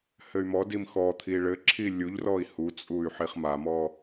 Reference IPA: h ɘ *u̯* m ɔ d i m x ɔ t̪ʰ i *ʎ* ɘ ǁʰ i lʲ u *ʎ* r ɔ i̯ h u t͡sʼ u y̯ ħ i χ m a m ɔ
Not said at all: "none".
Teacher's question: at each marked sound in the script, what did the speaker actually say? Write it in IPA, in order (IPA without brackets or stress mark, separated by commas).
y̯, ɭ, ʎ